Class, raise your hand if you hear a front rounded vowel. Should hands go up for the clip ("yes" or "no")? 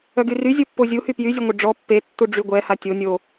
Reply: yes